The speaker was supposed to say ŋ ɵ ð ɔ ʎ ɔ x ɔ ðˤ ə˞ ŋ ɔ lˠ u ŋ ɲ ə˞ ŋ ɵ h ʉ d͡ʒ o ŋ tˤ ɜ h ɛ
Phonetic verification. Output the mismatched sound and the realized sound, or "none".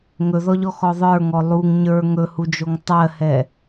ʉ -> u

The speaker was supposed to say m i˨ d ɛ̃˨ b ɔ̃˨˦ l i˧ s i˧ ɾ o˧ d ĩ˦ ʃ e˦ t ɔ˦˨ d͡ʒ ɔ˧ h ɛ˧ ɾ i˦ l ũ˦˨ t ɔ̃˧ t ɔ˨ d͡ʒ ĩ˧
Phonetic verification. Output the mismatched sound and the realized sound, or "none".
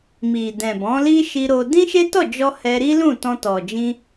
s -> ʃ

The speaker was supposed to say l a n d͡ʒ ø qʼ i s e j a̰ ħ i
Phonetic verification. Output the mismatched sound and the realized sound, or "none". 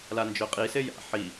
none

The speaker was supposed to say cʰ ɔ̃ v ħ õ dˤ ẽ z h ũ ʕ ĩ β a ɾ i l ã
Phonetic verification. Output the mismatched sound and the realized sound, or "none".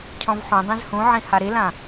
β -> h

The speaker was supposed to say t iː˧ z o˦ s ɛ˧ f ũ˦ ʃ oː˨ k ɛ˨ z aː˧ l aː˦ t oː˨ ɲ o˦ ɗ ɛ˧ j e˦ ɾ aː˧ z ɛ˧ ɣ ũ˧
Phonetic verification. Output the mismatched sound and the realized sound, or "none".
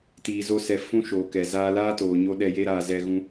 none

